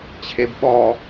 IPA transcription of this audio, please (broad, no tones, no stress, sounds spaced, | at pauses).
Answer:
t͡ɕʰ e b ɓ ɔ